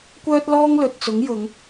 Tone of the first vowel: high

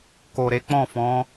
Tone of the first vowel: low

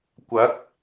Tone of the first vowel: rising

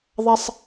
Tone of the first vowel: high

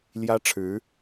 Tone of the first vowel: high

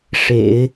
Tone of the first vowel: low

